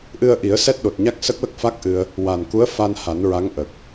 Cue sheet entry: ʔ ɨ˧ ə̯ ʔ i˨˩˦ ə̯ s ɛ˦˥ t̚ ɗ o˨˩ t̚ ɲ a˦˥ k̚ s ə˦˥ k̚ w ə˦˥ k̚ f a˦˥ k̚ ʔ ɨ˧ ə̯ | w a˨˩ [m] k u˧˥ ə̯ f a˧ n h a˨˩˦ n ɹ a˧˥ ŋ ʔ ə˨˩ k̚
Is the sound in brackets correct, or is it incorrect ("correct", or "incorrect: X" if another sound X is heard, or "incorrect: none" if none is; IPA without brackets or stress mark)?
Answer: incorrect: n